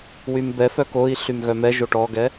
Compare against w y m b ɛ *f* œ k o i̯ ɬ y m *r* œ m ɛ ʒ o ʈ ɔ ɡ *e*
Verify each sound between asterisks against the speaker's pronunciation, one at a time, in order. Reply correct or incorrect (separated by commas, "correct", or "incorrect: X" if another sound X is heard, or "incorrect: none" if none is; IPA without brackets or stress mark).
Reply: correct, incorrect: ɣ, incorrect: ɛ